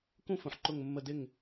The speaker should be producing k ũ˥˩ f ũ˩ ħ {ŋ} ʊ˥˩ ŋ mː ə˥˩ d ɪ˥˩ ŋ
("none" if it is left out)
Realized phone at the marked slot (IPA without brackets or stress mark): ǃ